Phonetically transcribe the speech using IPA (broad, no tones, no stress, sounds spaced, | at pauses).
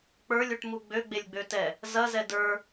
k͡p ə˞ lʲ u ʈ m u ɡ͡b ø ɡ͡b e lʲ ɡ͡b ø t ɛ | z ɐ z ɛ d ə˞